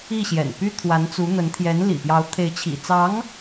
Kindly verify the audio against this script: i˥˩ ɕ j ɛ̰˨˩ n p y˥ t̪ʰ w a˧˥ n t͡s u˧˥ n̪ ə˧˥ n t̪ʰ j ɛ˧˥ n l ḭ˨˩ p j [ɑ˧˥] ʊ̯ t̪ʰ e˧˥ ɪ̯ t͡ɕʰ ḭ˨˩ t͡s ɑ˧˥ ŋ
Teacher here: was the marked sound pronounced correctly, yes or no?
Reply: yes